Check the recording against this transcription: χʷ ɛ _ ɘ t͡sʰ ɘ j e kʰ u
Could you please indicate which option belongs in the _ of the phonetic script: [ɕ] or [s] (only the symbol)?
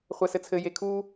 s